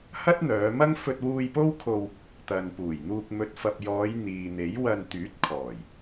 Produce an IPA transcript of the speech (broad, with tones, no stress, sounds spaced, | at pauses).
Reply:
h ɐ˥ t̚ n̪ œː˨˧ m ɐ˥ ŋ f ɵ˧ t̚ w uː˧ j p o˥ w kʰ o˧ w | t̪ ɐ˨ n p uː˨˩ j n̪ uː˧ k̚ m ɵ˨˥ t̚ f ɐ˨ p̚ j ɔː˨˧ j n̪ iː˨ n̪ e˨˥ j w ɐ˧ n t̪ yː˨˥ t̚ kʰ ɔː˨˩ j